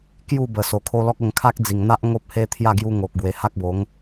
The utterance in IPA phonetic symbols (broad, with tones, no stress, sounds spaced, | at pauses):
k j u˥˧ b ə˨˩ s o˨˩ kʰ o˦ l ɔ˦ k̚ ə˧ ŋ kʰ a˦ k̚ d͡z i˨˩ ŋ n̪ a˦ ʔ ŋ o˦ p̚ h e˦ t̪ʰ j a˥˧ ɡ j u˦ ŋ o˨ k̚ ɡ w e˨˩ h a˦ k̚ b o˨˦ ŋ